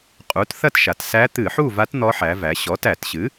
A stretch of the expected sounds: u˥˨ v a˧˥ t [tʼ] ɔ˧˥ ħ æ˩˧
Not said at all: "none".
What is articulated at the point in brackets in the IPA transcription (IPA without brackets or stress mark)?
n̪